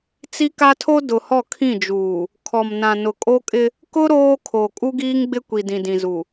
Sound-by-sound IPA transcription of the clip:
t͡si˦ka˦tʰo˦ dʊ˨hɔ˦˨kʰĩ˦˨d͡ʒuː˨ | kʰɔ˨mnã˨ nʊ˨kʼo˦kʼɪ˦ | kʊ˦ ɾoː˦kʰo˨ kʼu˦ɡiː˦ŋɡ͡bɪ˦ kʷi˨dĩ˨dĩ˨zu˨

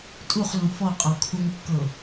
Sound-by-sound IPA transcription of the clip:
tʼuχlũ fɔqʼɔ kʰuŋkːɤ

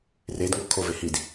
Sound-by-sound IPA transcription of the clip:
redŋo kʰove hid

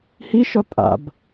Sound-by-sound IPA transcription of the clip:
hiʃɔ tʼa̰b

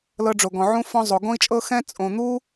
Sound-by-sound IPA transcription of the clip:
lɤ˧ɖ͡ʐo˨ ɡɔ̃˨ʕũ˧fɔ̃˧zˤo˨ ɡõ˧i̯t͡ʃʼɤ˧ xɛ̃˧ t͡sʼõ˨ n̪u˦

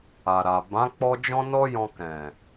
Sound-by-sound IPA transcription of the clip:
a˨ɾa˨ bã˨˦ k͡pɔ˦ d͡ʒɔ̃˦nɔ˦jɔ̃˧ kɛ̃˨

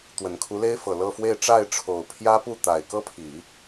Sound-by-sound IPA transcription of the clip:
t̪wə˨˩nkʰu˧˥le˥ɪ̯fɤ˨˩ lɤ˥˧fwe˥˧ɪ̯ ʈ͡ʂa˥˩ɪ̯ʈ͡ʂʰo˨˩ʊ̯pʰjä˥ pu˥˩t̪a˨˩ɪ̯kɤ˥pʰi˨˩˦

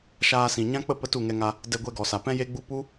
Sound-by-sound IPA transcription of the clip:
ʃaː˧sĩ˨ɲã˦k͡pə˦ pə˦tu˦˨ŋɛ˧ŋa˧ | dɛ˧ɡʷɛ˧ɡɔ˨sa˨ pɛ̃˦je˦ɡ͡bu˦ pu˦

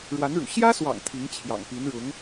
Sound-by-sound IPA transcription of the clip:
ɻwa˧˥nɻṵ˨˩ ɕjä˥swɑ̰˨˩ŋ t̪ʰi˧˥ŋ t͡ɕʰjɑ̰˨˩ŋpi˧˥nɻʊ˧˥ŋ

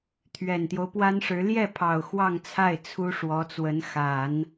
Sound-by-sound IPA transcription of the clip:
t̪ʰɥɛ˨˩nt̪jo˦ʊ̯pwa˥nʂɻ̩˧˥ ljɛ˥˩pʰɑ˨˩ʊ̯ xwɑ˥˧ŋt͡sʰa˥˩ɪ̯ t͡sʰu˥ʂwɔ˧˥t͡swə˧˥n xa˨˩˦n

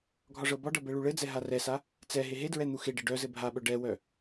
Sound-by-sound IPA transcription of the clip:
ɡʱɒʐɤbɒɖɤ bɛɭuɭɘd͡zɛ ɦarɛsa | t͡sɛ ɦeɦedɹɛ n̪uxeɖɘ ɖœzɘ bʱaɓœ ɖɛwœ

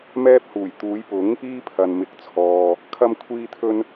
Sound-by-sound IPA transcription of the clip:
mɛː˥p̚huː˨˩j t̪uː˨˧jpʊ˨˥ŋ | iː˥pʰɐ˨n mɪ˨˥k̚t͡sʰɔː˨ | kʰɐ˥mkʷʰiː˥t̪ʰɵ˥n

